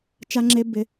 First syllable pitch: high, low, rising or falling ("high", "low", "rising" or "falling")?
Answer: high